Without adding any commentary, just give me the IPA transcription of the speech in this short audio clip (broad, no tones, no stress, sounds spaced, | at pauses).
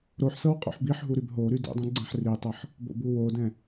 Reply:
ɾ o ħ s ɤ w qʼ o̰ ħ b i ħ ɦ u ɾ y b ɦ o ɾ y d ḭ dˤ ĩ ɡ͡ǀ ɛ̃ ħ r i tˤ ɤ ħ | b o̰ b u w o d ɛ̃